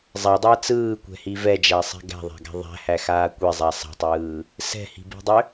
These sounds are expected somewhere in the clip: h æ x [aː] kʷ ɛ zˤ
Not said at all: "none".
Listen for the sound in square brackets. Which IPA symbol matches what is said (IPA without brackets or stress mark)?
aː